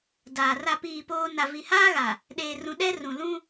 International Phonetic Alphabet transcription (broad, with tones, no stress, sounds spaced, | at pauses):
d aː˨ r a˦˨ p iː˦˨ p oː˦ n a˨ v i˨ h aː˦ ɣ a˨ | ɗ eː˨ r ũ˨ ɗ ɛ˦ r ũ˨ l ũ˦